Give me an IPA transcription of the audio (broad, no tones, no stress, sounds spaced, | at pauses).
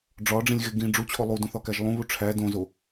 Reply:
ɖ͡ʐ ɒ ɖ͡ʐ ĩ lʲ ɣ e ɡ ĩ ɖ͡ʐ u t͡ɕʰ o lˠ u d ũ θ ɒ k æ ʒ lˠ ũ β u ʈ͡ʂʰ æ d õ z o